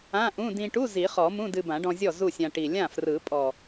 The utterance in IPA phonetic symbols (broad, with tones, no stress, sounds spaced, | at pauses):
ã˧˥˧ ʔ ũ˧˥˧ d ĩ˧ ʈ u˧˥˧ z i˨˩˦ χ ɔ˨˩˦ m ũ˧˥˧ d ɨ˧ b ã˨˩˦ ɖ ɔ̃˧ zʲ ɔ˥˩ z u˥˩ sʲ ã˧ ʈ i˨˩ lʲ ã˥˩ f r ɯ˨˩˦ pʼ ɔ˨˩